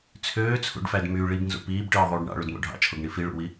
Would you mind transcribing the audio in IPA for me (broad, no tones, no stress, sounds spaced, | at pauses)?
t͡sʰ øː t͡sʰ ṵ ɖ f æ d m y ɭ i b n z ṵ p iː b ʈ ɯː ðˤ uː ɖ ɳ ɑ̰ ɭ u d m o̰ ɖʱ ɑ̰ t͡ʃʰ o ɡ ɳ i f i ɭ ṵ w i